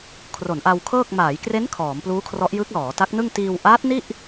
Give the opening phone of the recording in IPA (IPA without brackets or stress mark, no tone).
kʰ